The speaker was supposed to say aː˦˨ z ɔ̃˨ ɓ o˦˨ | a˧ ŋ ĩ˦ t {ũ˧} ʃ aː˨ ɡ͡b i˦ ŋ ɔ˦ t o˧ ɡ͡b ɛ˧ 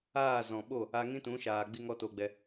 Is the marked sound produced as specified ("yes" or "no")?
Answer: no